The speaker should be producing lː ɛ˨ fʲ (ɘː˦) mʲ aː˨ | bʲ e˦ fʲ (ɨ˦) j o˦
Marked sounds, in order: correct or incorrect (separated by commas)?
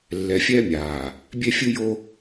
incorrect, correct